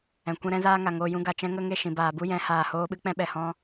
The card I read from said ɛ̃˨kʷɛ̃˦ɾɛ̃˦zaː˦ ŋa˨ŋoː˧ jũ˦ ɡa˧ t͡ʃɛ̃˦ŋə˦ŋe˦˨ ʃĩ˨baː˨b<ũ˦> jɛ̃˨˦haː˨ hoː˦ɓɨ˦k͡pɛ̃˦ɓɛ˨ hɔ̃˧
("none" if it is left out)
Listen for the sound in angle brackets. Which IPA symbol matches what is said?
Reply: u˦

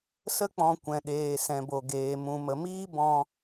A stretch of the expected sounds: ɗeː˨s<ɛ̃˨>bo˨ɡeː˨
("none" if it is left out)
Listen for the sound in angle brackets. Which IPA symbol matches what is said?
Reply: ɛ̃˨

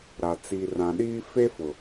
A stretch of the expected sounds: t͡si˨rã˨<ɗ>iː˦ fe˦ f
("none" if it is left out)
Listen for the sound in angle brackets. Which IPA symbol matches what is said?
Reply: ɗ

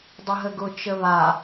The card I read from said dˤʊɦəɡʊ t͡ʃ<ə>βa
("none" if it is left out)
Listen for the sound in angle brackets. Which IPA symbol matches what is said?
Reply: ə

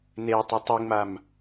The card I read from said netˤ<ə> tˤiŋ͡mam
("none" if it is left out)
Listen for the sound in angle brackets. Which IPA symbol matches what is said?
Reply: ə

